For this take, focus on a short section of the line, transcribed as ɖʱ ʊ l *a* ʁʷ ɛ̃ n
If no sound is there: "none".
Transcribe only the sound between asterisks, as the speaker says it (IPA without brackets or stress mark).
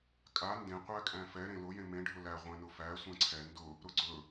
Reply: æ